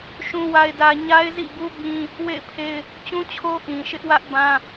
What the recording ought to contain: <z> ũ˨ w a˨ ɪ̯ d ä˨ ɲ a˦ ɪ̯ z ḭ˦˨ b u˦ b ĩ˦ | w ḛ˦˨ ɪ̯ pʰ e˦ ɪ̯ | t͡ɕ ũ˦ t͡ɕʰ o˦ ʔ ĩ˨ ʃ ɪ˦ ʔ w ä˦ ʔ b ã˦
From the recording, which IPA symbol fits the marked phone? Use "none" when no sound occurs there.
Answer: ʃ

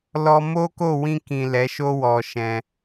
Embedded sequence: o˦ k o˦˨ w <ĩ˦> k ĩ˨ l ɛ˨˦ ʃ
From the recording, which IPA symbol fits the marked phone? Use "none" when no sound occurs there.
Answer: ĩ˧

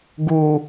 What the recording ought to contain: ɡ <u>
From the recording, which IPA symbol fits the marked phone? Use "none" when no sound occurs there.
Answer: u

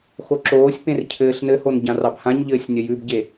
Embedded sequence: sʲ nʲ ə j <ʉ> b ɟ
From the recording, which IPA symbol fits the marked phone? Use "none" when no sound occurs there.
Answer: ʉ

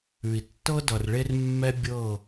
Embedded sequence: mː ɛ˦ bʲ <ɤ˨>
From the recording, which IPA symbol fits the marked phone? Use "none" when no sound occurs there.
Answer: ɤ˦˨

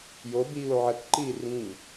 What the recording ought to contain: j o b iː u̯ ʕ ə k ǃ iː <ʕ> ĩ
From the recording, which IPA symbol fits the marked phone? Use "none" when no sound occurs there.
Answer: r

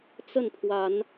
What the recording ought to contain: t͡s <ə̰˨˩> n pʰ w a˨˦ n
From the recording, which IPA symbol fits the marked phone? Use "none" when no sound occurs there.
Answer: ə˥˨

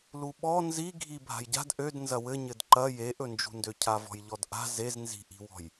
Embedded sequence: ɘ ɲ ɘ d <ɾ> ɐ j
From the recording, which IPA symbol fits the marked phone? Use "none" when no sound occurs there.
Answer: ǃ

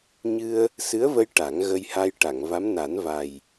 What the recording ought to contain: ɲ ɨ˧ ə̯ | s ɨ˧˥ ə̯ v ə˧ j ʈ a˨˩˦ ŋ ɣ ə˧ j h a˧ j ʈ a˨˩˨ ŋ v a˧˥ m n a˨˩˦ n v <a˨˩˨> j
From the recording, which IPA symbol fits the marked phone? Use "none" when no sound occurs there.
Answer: a˨˩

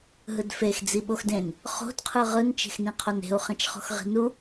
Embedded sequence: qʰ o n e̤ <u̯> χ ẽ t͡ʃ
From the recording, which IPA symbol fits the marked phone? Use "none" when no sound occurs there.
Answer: u̯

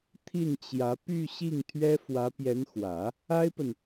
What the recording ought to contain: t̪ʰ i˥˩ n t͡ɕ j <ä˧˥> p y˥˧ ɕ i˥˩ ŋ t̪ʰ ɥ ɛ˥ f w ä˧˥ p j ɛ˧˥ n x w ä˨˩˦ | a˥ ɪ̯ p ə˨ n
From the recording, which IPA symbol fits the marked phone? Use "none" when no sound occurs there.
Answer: ä˧˥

